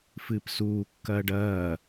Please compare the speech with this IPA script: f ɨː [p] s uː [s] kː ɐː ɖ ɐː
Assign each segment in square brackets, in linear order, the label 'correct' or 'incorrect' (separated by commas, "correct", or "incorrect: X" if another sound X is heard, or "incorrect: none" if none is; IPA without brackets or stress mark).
correct, incorrect: none